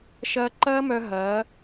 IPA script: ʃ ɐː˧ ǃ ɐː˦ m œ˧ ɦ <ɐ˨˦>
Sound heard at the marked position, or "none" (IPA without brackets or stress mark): ɐː˨˦